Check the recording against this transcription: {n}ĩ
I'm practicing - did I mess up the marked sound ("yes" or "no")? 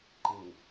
yes